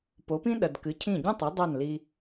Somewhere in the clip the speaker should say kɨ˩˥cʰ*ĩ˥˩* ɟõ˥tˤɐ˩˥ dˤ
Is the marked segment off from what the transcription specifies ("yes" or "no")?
no